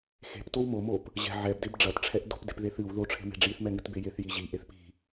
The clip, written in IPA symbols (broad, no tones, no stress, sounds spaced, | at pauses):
x e̤ p t o w m o m o p | ʑ ɛ̤ ʕ ɛ b d e b ɖ͡ʐ ɐ t ʈ͡ʂʰ ɛ ʔ d o̤ p d e̤ p ð e θ ɨ w ð o ʈ͡ʂʰ e̤ m e̤ ɖ͡ʐ i θ m ɛ ŋ ɨ t b e j e θ j i ʑ i ʔ e θ p i̤